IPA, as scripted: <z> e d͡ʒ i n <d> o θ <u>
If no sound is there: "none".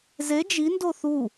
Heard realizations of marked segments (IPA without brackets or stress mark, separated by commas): z, d, u